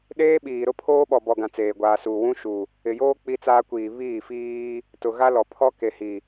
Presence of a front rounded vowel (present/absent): absent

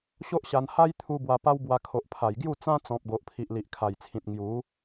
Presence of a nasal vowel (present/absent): present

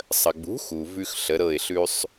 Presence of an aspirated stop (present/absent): absent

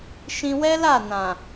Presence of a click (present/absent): absent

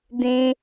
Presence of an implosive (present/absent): absent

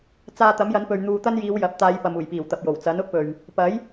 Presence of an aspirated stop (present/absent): absent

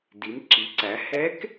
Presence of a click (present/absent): present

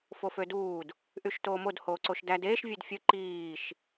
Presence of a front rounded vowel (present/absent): present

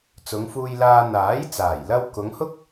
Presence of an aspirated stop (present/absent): absent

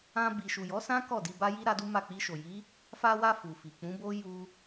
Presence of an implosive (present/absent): absent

